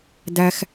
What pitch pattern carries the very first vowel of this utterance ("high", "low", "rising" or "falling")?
low